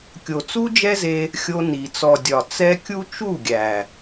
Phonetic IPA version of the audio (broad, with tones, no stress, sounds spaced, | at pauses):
kʲ o˨ t͡s u˦ d͡ʒ ɛ˦ z e˧ | xʲ o˧ n i˨ t͡s ɔ˨ dʲ ɒ˨ t͡s ɛ˧ kʲ u˦ t͡ʃ u˦˨ ɡʲ æ˨